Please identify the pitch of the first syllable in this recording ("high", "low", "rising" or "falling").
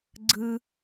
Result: low